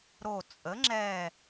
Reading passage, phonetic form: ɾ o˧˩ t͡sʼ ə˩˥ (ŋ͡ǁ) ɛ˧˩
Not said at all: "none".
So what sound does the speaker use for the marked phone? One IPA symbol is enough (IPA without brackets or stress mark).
ŋ͡ǁ